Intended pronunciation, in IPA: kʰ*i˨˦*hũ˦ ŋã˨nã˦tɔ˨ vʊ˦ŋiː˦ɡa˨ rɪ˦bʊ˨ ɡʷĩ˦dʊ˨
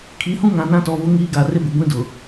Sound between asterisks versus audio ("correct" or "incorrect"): correct